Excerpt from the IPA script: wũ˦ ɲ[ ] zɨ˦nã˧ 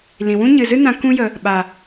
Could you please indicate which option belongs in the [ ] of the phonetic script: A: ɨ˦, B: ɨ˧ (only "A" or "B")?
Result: B